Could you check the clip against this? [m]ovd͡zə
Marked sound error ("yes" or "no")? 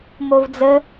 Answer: no